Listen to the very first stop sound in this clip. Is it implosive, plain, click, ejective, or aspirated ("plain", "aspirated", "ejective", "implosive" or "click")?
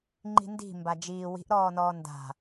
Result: click